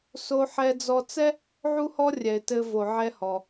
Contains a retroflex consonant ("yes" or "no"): no